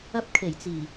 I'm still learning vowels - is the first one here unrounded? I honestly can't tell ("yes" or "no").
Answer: yes